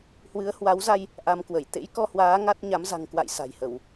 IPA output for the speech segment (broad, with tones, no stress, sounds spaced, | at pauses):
h w ɨ˨˦ ə̯ h w a˨˦ w z a˧ j | ʔ a˧ m k w ə˧˩ j t̪ ḛ˧˥ j k ɔ˧ h w aː˨˦ ŋ a˦˥ t̚ ɲ a˨˦ m z a̤˨˩ ŋ k w a̰˧˨ j s a̤˨˩ j h ə˧˩˨ w